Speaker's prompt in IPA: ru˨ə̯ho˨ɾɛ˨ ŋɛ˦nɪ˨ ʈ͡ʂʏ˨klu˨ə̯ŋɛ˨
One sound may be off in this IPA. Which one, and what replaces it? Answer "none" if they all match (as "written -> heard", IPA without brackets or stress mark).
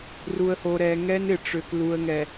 none